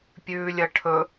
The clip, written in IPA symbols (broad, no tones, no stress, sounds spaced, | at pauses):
pʲ ʉː lʲ ɐ ʈʰ ɵ